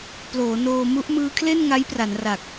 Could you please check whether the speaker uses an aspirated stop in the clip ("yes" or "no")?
yes